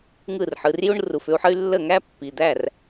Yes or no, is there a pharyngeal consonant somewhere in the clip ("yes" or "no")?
yes